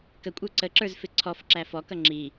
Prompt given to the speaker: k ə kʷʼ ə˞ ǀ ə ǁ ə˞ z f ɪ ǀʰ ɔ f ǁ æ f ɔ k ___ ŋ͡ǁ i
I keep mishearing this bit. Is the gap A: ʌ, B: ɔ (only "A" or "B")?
A